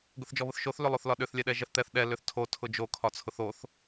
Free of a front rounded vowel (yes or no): no